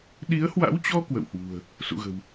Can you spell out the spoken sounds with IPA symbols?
ɗ i˨˦ ə̯ h w a̰˧˥ w t͡ɕ ɔ˧ k w ə̰˧˨ w h w ṳ˨˩ ə̯ | s ṵ˧˨ ɣ ə̤˨˩ w

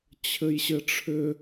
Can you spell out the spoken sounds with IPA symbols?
t͡ɕʰ ɘ j ɕ ɘ ʈ͡ʂʰ ʏ

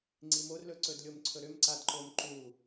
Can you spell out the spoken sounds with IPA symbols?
ŋ͡ǀ i m o r l ɵ ǀ ɵ d lʲ o m ǀʰ ɵ ɾ ʏ m ǀ a d ǃ o m ǃ u

